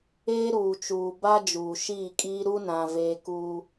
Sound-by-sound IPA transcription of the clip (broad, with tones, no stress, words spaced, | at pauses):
eː˦ ɾuː˨t͡ʃuː˨ ba˦ d͡ʒuː˨ʃiː˦˨kʼiː˦ ɾu˦nã˨ veː˦kuː˦